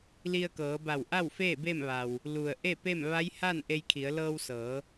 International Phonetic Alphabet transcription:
l i˧ ə̯ k ɤː˩˧ b a˧˩ w ʔ a˥˨ w f eː˥˨ b e˥˨ m ʋ a˩ w | l u˩ ə̯ ʔ e˥˨ p e˥˨ m ʋ a˧˥ j h a˥˨ n ʔ e˧ j kʰ i˩˧ ə̯ l ɤː˧ w s ɤː˩˧

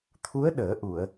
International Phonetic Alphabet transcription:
t̪ʰ u˧˥ ə̯ ɗ əː˨˩˦ ʔ u˨˩˨ ə̯

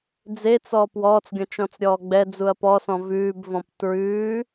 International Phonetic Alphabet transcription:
d͡z e t͡s ɔ p w ɔː t͡s ɡʲ ɔ̃ t͡ʃ ɔ̃ t͡s ɾʲ ɔː ɡ͡b ɛ d͡z u ɐ̯ p ɔ s ɔ̃ v ʉː b v ɔ̃ p t ɹ ʉː

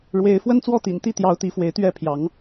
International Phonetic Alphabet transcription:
ɻ w e˨˦ ɪ̯ f w ə˦ n t͡s w ɔ˥˨ t̪ ḭ˨˩ n t̪ i˥˨ t̪ j ɑ˨˦ ʊ̯ t̪ i˨˦ f w e˨˦ ɪ̯ t̪ ɥ ɛ˥˨ pʰ j ɑ˨˦ ŋ

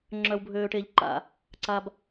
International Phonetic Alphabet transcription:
ŋ͡ǁ œ˧ w bʱ øː˧ ʈ e˧ ʎ ǃ a̰˦˨ | ǀ a˧ b

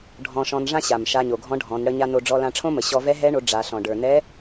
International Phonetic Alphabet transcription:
ɖʱ ɔ̃˧ ʃ ɔ̃˧ n ʐ ã˥ ɕ a˩ m ʃ a˧ ɲ o˩ ɡʱ ɔ̃˧˥ ɖʱ ɔ̃˩˧ n ɽ ə˧ ɲ a˧ n o˧ ɖ͡ʐ ɔ˧ l ã˧ ʈ͡ʂʰ õ˥ m ə˩ ɕ ɔ˧ v ɛ˧˥ ɦ ɛ˧˥ ɳ o˩˧ ɖ͡ʐ a˩˧ ɬ ɔ̃˩ ɖ ə˞˩ n ɛ˧˥

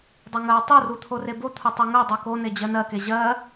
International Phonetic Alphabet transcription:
dˤ o ŋ ɜ w tˤ u r u t̪ʰ o r e b o t̪ʰ u tˤ o ŋ ɜ dˤ u k o n e d͡ʑ ɜ n ɜ k e ʑ ɜ

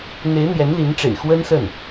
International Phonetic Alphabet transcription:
n̪ e˧˥ ɪ̯ n̪ j ɛ˧˥ n l i˧˥ n ʈ͡ʂ ḛ˨˩ ɪ̯ x w ə˥ n s ə˥˩ n

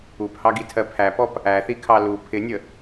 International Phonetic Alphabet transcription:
u p h ɑ ɡ i tʰ ɜ pʰ æ p ɔ p | æ θ i kʰ ɑ l u pʰ ɪ nʲ ə

